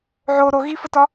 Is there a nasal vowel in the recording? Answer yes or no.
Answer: no